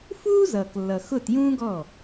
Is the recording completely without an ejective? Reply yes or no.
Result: yes